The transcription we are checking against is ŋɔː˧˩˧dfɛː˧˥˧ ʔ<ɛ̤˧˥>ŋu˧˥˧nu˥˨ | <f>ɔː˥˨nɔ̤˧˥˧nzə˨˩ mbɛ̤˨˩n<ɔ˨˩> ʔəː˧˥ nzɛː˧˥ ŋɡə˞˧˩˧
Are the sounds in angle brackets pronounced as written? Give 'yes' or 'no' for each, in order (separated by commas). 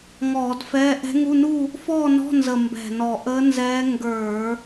yes, yes, yes